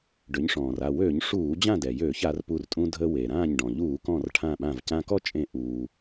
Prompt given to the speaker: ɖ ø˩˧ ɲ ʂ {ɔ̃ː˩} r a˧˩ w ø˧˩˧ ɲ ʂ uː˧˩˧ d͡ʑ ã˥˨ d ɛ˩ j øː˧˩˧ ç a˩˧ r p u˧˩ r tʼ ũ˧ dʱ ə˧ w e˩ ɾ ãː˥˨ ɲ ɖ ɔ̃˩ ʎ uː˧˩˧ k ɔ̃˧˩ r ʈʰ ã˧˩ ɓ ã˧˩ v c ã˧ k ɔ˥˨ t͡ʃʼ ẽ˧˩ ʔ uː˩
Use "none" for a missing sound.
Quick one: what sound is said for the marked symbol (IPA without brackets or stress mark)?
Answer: ɔ̃ː˩